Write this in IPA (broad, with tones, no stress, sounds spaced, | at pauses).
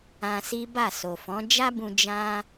ã˧ s i˦ b a˦˨ s o˨ f ɔ̃˨˦ d͡ʒ a˦ b ũ˧ d͡ʒ ã˦